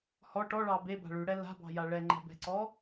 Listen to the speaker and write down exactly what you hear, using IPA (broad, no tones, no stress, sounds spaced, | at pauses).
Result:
h ɔ ʈ ɔ ɭ ɑ b e b a̤ ɭ ʉ ɽ ɛ l a̤ b ɑ̤ j a ɭ ɛ ŋ͡ǃ ɛ̤ b ɛ̤ ǀ ɔ